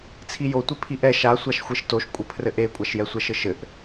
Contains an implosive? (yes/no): no